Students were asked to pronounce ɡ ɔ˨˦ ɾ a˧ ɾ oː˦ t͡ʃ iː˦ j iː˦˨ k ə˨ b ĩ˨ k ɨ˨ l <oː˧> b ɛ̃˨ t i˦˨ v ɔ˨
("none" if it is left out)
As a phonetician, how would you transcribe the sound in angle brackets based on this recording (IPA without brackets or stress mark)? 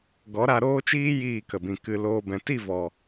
oː˧